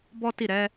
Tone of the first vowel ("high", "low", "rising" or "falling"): high